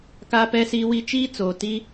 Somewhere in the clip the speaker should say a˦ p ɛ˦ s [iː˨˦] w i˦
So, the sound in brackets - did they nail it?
no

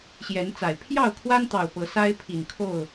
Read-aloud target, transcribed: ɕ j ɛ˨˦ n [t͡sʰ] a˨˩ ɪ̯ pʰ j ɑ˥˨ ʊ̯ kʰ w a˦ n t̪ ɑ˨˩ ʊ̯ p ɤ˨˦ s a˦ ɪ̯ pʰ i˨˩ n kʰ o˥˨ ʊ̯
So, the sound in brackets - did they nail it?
no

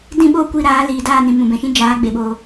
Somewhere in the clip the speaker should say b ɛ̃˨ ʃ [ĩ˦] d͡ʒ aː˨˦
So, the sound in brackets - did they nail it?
yes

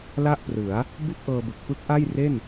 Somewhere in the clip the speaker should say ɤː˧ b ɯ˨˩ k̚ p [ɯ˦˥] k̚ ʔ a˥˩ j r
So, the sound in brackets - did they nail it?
yes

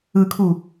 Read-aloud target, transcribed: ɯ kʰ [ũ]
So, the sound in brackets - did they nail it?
no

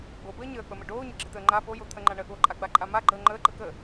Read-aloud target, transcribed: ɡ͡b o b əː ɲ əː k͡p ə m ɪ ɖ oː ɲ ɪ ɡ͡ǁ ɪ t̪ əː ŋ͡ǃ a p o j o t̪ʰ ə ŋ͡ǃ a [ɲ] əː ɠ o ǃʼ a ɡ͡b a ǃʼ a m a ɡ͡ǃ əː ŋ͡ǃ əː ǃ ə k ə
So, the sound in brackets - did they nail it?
no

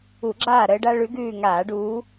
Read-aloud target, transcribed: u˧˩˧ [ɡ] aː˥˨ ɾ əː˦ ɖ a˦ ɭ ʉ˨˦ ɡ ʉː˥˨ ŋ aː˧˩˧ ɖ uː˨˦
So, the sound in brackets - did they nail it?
no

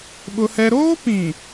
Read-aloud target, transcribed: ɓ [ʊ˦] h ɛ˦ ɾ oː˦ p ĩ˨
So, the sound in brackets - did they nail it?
yes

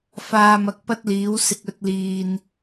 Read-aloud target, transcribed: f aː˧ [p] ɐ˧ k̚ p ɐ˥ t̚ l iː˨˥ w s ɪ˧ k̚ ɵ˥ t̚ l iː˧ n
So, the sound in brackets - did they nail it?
no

